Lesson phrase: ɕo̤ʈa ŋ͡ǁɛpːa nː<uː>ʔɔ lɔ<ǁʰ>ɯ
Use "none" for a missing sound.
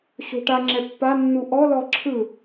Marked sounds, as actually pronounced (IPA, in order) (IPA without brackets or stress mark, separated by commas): u, ǁʰ